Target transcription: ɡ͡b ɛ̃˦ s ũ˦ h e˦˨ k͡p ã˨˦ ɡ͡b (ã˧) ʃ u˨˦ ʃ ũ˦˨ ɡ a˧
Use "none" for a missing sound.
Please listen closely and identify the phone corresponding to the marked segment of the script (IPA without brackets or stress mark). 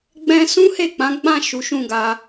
ã˦˨